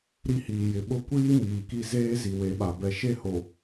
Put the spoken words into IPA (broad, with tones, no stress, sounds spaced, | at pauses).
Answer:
ɾ i˦ h iː˨ j ɪ˨ ɓ ʊ˦ kʷ iː˦ m iː˨ k i˦ z eː˦ z i˨ w e˨˦ ɓ a˨ b ɛ˨ ʃ e˦˨ h o˨